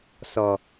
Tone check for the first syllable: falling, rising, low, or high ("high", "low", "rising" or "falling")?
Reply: low